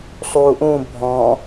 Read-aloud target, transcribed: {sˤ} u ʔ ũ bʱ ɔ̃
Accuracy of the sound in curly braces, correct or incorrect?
correct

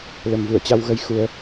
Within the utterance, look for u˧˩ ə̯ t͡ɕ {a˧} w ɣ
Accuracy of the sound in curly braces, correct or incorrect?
correct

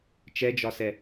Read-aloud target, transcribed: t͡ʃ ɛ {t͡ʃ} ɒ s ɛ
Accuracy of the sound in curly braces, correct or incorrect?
incorrect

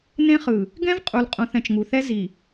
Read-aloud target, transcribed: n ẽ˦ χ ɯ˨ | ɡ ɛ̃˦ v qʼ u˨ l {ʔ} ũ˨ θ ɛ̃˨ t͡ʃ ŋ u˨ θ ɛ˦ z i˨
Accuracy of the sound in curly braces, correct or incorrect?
incorrect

